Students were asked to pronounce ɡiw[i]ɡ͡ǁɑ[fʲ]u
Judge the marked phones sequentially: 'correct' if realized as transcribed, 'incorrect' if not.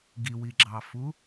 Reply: correct, incorrect: f

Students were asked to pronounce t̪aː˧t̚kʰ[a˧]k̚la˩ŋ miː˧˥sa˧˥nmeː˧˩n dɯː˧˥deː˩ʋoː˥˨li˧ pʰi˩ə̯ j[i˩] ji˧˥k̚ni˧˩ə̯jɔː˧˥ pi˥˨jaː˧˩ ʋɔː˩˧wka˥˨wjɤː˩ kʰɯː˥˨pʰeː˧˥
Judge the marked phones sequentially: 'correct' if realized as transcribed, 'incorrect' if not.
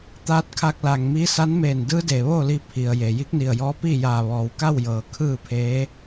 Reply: correct, incorrect: e˩

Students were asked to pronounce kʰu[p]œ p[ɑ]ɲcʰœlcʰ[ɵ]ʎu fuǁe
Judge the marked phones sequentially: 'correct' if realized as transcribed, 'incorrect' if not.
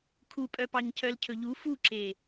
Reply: incorrect: pʼ, correct, correct

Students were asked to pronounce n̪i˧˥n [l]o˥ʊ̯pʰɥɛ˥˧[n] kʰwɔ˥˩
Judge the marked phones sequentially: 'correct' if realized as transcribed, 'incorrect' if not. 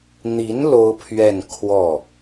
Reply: correct, correct

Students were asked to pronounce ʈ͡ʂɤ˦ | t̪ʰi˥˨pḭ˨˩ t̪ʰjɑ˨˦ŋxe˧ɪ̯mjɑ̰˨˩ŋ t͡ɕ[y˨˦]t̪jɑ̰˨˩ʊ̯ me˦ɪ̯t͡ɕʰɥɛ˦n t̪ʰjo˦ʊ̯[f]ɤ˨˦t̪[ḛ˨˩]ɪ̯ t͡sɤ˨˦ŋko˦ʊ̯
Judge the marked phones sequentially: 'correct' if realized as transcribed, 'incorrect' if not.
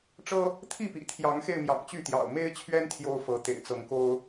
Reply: incorrect: y˥˨, correct, correct

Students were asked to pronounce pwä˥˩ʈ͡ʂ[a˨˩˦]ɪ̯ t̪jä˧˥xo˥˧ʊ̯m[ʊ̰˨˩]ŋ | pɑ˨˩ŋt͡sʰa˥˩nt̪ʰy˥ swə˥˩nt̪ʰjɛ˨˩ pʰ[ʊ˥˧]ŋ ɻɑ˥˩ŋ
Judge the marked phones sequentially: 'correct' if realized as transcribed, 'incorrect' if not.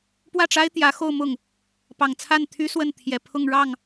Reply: incorrect: a˥, incorrect: ʊ˥˩, correct

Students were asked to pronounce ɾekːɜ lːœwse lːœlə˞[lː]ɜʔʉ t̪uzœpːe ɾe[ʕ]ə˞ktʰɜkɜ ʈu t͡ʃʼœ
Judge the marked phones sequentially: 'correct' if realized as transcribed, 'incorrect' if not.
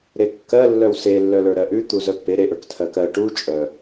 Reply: incorrect: ɾ, incorrect: ʔ

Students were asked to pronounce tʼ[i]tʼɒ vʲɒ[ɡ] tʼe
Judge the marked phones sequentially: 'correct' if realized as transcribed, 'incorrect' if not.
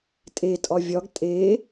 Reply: incorrect: e, correct

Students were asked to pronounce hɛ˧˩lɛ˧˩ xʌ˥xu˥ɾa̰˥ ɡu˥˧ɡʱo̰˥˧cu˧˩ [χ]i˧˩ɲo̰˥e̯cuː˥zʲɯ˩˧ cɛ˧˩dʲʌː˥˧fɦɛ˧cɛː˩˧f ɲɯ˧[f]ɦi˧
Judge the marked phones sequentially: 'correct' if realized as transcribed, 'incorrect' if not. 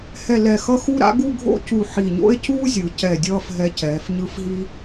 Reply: incorrect: ħ, correct

